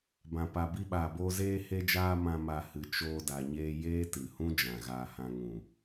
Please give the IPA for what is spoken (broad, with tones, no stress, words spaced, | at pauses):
bã˨ pa˨ bi˧ɓaː˨boː˧ zeː˧he˧d͡ʒaː˧ mã˧ma˧ hɨ˧ t͡ʃoː˧da˨ɲeː˧ jeː˦tɨ˨hũ˦ d͡ʒã˨ɣaː˧hã˧ ŋũ˨